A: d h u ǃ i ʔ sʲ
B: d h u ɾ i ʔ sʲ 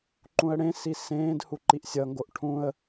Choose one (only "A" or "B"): A